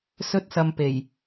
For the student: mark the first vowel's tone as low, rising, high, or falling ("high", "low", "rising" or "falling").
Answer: high